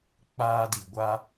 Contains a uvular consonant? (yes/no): no